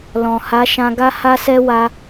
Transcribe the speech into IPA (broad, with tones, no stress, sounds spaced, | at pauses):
l ɔ̃˨ h a˨˦ ʃ ã˧ ɡ a˦ h a˦ s ɛ˦ w a˧